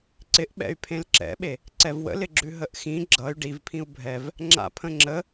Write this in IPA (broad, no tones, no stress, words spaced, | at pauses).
ǀɪʔɓɛ̰y̯pʰẽl ǁɛ̰ɓe | ǀɛvwə̰lɪɡ͡ǁʉ ɦəʔxĩ ɡ͡ǁʌy̯ ɖivpʰĩu̯ bʱɛv | ŋ͡ǁa̰pʰə̃ŋ͡ǁə